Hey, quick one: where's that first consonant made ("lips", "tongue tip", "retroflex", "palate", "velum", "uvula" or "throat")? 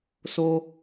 tongue tip